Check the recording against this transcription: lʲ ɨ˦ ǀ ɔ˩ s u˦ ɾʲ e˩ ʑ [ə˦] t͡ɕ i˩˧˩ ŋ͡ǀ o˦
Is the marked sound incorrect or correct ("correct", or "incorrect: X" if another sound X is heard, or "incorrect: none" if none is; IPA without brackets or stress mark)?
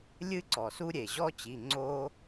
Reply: incorrect: ɔ˦